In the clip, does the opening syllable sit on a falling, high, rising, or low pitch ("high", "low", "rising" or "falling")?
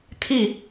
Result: falling